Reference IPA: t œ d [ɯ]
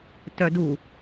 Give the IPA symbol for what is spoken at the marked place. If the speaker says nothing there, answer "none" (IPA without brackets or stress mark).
u